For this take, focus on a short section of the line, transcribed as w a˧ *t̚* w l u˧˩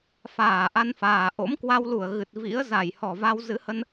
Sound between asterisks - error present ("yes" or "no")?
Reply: yes